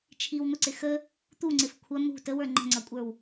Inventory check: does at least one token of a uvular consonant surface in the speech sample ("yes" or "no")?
no